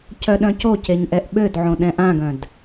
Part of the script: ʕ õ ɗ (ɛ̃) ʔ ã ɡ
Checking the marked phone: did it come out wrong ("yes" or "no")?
no